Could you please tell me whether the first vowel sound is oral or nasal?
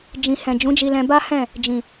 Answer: nasal